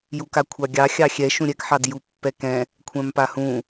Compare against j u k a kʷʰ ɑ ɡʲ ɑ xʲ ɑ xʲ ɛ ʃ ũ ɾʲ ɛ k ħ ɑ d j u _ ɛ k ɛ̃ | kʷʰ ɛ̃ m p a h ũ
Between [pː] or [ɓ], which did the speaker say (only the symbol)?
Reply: pː